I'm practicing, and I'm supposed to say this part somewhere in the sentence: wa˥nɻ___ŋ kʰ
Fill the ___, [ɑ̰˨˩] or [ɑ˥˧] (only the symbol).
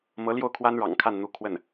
ɑ̰˨˩